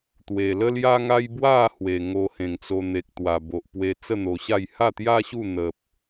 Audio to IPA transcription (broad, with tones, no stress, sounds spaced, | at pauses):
t̪ w e˨˩ l ə˦ l j a˦ ŋ a˦ j b w a˥˧ h w e˨˩ ŋ o˧ h ẽ˨˩ ŋ t͡s o˧ n̪ e˨ k̚ t̪ w a˨˩ b o˨ ʔ p w e˧ t͡s ə˥˧ n̪ o˧ ɕ a˥˧ j h a˥˧ t̪ j a˦ ɕ u˥˧ n̪ ə˦ p̚